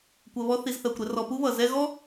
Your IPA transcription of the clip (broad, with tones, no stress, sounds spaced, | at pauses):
kʷ ɜ˧ β ɔ˦ θ i˧ z θ ɜ˨ kʷ ɾ ɛ˧ r ɔ˧ p u˦ β ʌ˨ z ɛ˦ ɣ ɔ˦